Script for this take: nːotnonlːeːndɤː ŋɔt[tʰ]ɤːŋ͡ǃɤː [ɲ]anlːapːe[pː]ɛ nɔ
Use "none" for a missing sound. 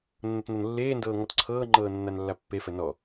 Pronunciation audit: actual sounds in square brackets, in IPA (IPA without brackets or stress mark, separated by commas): ǀʰ, nː, f